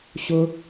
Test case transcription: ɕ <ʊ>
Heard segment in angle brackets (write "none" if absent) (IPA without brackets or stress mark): ʊ